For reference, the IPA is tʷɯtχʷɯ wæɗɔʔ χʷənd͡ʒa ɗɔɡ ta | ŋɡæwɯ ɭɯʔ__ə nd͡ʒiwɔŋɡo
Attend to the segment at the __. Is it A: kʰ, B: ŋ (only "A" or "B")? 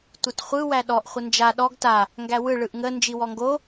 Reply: B